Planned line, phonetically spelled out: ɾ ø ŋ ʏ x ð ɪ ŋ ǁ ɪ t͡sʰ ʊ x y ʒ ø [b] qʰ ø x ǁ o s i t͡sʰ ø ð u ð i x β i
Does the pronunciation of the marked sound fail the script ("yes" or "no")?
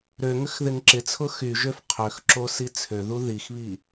yes